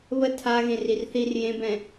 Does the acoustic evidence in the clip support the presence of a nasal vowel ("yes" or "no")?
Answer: yes